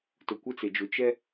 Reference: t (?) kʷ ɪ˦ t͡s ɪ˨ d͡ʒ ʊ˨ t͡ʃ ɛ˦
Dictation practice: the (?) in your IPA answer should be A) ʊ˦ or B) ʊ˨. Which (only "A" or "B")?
B